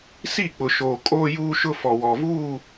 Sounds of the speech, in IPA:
s i˦˨ k͡p ʊ˨ ʃ oː˨ kʼ oː˦ j uː˦ ʃ ʊ˦ f ɔ˨ w ɔ˨ v uː˦˨

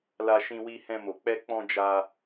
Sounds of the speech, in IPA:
l a˧ ʃ ĩ˧ w i˧ h ɛ̃˧ m o˨ k͡p ɛ˧ k͡p ɔ̃˧ d͡ʒ a˧

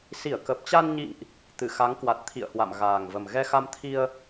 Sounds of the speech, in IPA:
s i˧˩ ə̯ k ə˨˩ p̚ t͡ɕ a˧ n ɲ ḭ˧˨ ŋ ʔ | t̪ ɨ˧˩ x a˨˦ ŋ k w a˨˩ t̚ t̪ʰ ḭ˧˨ ə̯ h w a̰˧˨ m ɣ aː˨˩ ŋ v ə˨˩ m ɣ ɛ˧ x a˧ m t̪ʰ i˧ ə̯

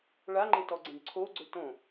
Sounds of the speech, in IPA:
ɭ a ŋ͡ǃ e t ɔ ɡ͡ǀ ẽ ɖ ǀʰ o ɡ͡ǀ ɵ t õ

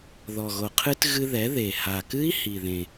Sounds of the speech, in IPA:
ð ɔ˨˩ ɣ o˨˩ qʰ ɨ˦˥ t ɣ ɨ˧ ð ɛ˩˥ ð e˨˩ h a˨˩ k ɨ˦˥ i̯ h i˨˩ ð ẽ˨˩

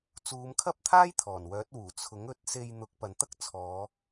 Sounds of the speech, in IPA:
t͡s uː˨˧ m kʰ ɐ˥ p̚ t̪ʰ aː˥ j t̪ʰ ɔː˨˩ n w œː˨˥ t̚ w uː˨˩ t͡sʰ ʊ˨˥ ŋ ɵ˧ t̚ s e˧ j n̪ ʊ˨˥ k̚ p ɐ˨ n t̪ ɐ˥ k̚ t͡sʰ ɔː˨˧

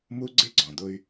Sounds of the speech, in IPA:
m u˦ ɡ͡ǀ ɪ˦ ɡ͡ǀ ɔ̃˨ d̪ ʊ˦ y̯

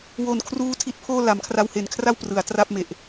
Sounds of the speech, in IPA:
w o˨˩ n kʰ r uː˧ tʰ i˦˥ t̚ pʰ oː˥˩ l a˩˦ m kʰ r a˧ w h e˨˩ n kʰ r a˥˩ w p r ɯ˩˦ a̯ t r a˥˩ p̚ m e˨˩ ʔ

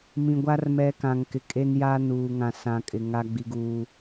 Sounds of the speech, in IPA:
m ĩ˨ ɡʷ a˦ r m ɛ˦ k ã˨ ŋ k ɪ˨ kʼ e˦ n j a˦ n uː˨ ŋ ã˨ s ã˨ kʼ ɪ˨ ŋ a˦ ɡ͡b i˦ ɡ uː˦

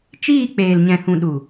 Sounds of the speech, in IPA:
t͡ʃ iː˦˨ k͡p eː˨ l ɲ ɛ̃˨ h ũ˨ ɗ u˨

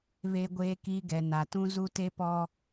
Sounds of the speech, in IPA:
β e˨ ɡʷ eː˨ k i˨ ɡ ɛ˨ n a˨ t ũ˦ z u˦ t e˦ p ɔ˦

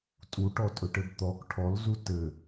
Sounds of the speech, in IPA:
tʼ u ʈ ɔ tʼ ɵ ʈ ɘ b t̪ ɔ k ʈʰ ɔ l z u t ɘ

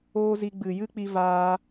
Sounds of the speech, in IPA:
oː˦ z i˧ ɡ͡b ɨ˨ j ɨ˦ k͡p i˧ v aː˧

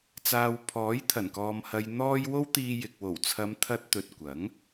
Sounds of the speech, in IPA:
t͡s aː˨ w pʰ ɔː˨˥ j t̪ʰ ɐ˨˩ n k ɔː˨ m h ɐ˨ j n̪ ɔː˧ j w o˥ w t̪ iː˧ j ɪ˨ k̚ w o˨˩ w t͡sʰ ɐ˨˧ m t̪ʰ ɐ˧ t̚ t̪ ɵ˨ t̚ kʷ ɐ˨˥ ŋ

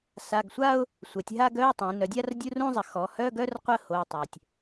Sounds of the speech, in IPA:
s a˩˧˩ ɡ sʷ a˥˧ ʊ̯ | sʷ ɛ˩˧ tʲ ɦ a˥˧ ɡ œ˧˥˧ ɪ̯ tˤ ẽ˩˧ n œ˩˧ dʲ a˥˧ r dʲ u˧˥˧ r ũ˥˧ zˤ ə˩˧ x ɔ˩˧ h œ˧˥˧ ɡ œ˥˧ r qʷ ə˥˧ h o˩˧˩ tˤ ø˩ tʲ

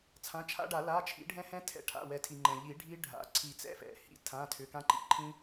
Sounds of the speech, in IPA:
t͡sʰ ã˩˧˩ t͡ʃʰ a̰˦˥ ɖ a˨˩˦ l a˩˧˩ t͡ʃʰ ḭ˨˩˦ ɖʱ ɛ̃˦˥ h ɛ̃˦˥ tʰ ɛ̰˨˩˦ ʈʰ a̰˩˧˩ w ɛ˨˩˦ tʰ i˩ ŋ͡ǃ ɛ̃˩ ʎ i˨˩˦ ɖʱ i˦˥ ɖʱ a̰˩˧˩ ǀʰ i˨˩˦ t͡s ɛ̰˦˥ f ɛ̰˩ h ḭ˩˧˩ tʰ ã˩˧˩ tʰ ʏ˩˧˩ k ã˦˥ ǃ ḭ˩˧˩ ǃʰ ĩ˦˥

